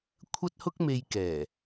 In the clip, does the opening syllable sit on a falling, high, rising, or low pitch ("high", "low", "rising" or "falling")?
high